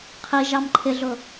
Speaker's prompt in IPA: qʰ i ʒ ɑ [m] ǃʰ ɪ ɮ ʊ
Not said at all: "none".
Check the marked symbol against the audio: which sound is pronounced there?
m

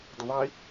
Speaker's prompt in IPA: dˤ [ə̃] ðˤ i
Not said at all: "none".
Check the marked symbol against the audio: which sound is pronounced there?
ə̃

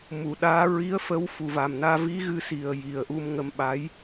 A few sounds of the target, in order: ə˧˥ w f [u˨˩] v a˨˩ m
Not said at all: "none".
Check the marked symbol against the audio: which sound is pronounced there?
u˨˩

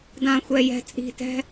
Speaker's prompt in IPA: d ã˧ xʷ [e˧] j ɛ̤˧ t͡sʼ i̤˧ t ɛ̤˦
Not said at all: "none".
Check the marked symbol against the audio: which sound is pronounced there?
ɛ˧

